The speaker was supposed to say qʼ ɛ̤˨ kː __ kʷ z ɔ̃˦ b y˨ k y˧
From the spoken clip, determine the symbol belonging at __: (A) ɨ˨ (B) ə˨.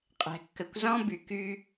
B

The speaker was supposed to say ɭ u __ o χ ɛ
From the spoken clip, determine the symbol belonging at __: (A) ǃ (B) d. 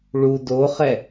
B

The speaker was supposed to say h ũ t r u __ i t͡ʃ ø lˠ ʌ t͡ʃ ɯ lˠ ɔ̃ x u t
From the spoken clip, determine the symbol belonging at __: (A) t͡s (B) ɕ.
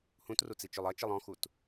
A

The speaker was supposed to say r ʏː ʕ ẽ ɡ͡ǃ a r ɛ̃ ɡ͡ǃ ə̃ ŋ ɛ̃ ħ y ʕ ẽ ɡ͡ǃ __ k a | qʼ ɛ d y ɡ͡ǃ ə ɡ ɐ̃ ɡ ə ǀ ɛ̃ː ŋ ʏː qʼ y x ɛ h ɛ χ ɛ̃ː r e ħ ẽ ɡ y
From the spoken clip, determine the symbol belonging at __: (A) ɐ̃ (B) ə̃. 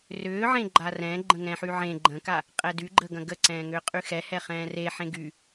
B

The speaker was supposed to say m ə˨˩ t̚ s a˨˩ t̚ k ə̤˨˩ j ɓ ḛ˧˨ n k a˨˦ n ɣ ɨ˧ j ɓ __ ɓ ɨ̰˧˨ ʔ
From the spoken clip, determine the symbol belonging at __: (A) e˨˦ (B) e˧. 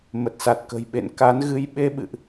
B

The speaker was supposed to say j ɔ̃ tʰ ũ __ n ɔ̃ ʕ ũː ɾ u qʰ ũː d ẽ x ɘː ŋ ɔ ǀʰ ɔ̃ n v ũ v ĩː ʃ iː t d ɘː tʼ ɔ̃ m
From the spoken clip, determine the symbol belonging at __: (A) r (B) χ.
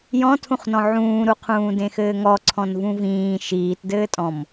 B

